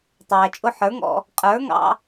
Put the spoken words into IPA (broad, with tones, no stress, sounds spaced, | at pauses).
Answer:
tˤ æː˨ t͡ʃʼ ʊ˧ ħ ə˞˨˦ ŋ ɔ̰˧ | qʼ ə˞˨˦ ŋ ɑ̰˧